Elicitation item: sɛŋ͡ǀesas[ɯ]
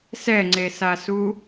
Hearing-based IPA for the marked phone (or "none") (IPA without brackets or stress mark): u